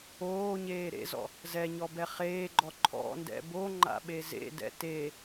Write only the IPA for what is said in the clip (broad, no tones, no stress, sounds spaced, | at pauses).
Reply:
oː ɲ eː ɾ ḛ z ɔ̰ | z ɛ ɲ ɔ b ɛ χ eː ɡ͡ǃ ɔ ǃʰ ɔ̰ n d ɛ̰ b o ŋ͡ǃ a̰ ɓ e z ḛ d ɛ̰ t e